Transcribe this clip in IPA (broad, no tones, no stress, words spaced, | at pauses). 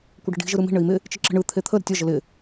kʷɪɖə̤ɖi̤ ʒɯɾɯmi̤ ɳɘi̯mɪ | t͡ʃɪǁə̤ɳɯ t̪ʰet̪ʰə ɾə̤tʲɒ ʒɘlɪ